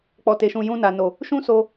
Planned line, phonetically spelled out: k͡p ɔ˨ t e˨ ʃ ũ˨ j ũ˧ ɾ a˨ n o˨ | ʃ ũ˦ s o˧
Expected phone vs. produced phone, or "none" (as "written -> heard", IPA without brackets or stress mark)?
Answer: ɾ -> n